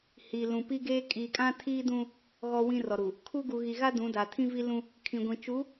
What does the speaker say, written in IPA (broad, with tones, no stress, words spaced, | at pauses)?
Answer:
hi˨ lũ˨ pi˦ɡeː˦ kʼiː˨kʼã˦tʰiː˦ dũ˦ | ɣɔ˦wĩ˦rɔ˨ɾu˨ | kʰu˦ ɡu˨ɣi˨ɣa˦ dũ˨˦da˨ tʰĩ˦vi˦lũ˦ | kʰĩ˨ɡʷĩ˨t͡ʃu˨˦